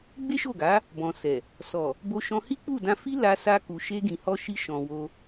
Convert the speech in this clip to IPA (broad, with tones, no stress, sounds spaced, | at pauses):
ɡ͡b e˦ ʃ o˦˨ ɡ a˨˦ | b ɔ̃˨ s ɛ˨ | s ɔ˨ | b o˧ ʃ ɔ̃˧ h i˦ k͡p u˦˨ d ã˧ f i˦ l a˧ s a˧ k u˨ ʃ e˧ ɡ ĩ˨ h ɔ˧ ʃ i˧ ʃ ɔ̃˨ w o˧